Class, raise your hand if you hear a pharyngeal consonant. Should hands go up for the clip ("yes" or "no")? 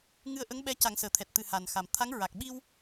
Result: no